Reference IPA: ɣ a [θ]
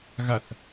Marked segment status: correct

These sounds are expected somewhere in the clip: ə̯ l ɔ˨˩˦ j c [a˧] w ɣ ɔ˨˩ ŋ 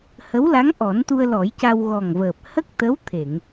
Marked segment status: correct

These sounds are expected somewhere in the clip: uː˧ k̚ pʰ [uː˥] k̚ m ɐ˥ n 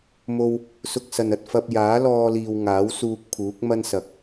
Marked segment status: incorrect: uː˨˥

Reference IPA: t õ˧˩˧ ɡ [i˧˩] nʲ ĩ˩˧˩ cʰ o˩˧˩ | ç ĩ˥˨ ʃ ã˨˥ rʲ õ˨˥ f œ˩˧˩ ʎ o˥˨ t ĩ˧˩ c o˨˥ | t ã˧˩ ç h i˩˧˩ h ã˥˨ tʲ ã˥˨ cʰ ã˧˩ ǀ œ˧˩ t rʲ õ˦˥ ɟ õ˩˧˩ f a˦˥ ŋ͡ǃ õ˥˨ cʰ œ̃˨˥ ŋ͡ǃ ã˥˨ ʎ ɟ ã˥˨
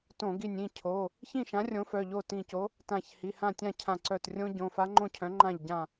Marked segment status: correct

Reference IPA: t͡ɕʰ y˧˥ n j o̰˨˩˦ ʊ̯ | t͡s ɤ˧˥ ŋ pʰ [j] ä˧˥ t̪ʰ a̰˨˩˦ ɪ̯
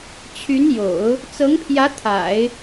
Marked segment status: correct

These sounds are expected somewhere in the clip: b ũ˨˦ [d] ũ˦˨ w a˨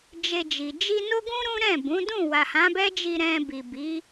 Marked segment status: correct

